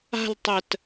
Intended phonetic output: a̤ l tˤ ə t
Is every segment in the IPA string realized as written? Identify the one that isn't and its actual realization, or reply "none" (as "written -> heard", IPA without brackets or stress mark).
none